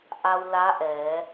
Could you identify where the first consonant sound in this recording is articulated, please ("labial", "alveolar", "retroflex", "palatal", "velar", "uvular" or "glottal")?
glottal